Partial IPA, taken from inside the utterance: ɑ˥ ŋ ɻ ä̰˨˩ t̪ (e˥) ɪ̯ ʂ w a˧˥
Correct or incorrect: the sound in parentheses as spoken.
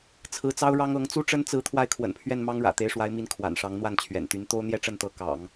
incorrect: e˧˥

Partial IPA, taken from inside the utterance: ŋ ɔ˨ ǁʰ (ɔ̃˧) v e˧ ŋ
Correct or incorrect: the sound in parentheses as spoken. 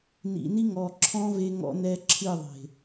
correct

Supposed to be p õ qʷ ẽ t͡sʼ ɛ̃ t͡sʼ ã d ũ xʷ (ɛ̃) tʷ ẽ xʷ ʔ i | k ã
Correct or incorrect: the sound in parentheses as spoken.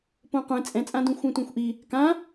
correct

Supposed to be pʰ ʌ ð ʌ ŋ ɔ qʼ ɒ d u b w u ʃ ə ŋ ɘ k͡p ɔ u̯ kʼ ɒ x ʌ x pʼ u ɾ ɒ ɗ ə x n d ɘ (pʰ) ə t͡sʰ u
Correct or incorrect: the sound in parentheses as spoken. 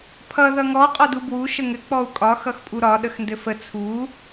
incorrect: f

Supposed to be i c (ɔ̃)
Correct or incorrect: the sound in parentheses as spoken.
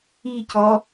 incorrect: ɔ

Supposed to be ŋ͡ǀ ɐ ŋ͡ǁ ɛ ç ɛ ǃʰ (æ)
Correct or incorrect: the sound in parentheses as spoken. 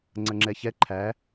correct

